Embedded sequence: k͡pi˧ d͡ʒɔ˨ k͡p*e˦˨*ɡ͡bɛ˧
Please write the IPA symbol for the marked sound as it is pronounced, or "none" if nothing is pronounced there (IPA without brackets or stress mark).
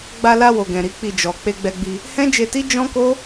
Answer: e˧